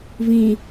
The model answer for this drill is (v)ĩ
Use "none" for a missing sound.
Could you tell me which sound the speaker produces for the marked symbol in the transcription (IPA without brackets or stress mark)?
v